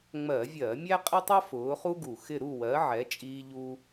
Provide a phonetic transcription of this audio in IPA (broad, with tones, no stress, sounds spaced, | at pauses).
ŋ͡m ɜ˧˩˧ vʲ ɜ˧˩˧ mʲ æ˥ qʼ ɪ˥ tˤ ʌ˥ f ʊː˨˦ χ u˥ ɡ u˨˩ x ɪ˥˧ ɾ u˥˧ w ɜ˨˦ ʕ ɛ˨˦ t͡ʃʼ iː˥ ʎ u˥